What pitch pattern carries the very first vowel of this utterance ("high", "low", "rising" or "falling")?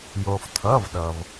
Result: low